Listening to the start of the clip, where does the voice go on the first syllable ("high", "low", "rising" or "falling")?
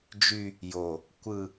low